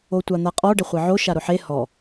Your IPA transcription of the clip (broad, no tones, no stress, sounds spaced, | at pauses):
o tʷ a n̪ a qʼ ɔ ɖ ɪ χʷ e ʕ o ʃ a ɾ ʊ ħ e h ɔ